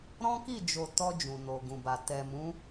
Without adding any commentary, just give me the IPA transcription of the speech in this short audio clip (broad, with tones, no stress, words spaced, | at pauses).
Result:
ɾɔ̃˦ki˦˨d͡ʒo˨ tɔ˧ d͡ʒũ˨no˨ɡũ˨ba˨ tɛ˨mũ˨˦